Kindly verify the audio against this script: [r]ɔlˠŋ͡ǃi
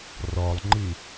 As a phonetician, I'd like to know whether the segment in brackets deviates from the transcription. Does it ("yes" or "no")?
no